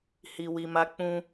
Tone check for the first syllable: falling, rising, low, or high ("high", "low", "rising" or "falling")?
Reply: low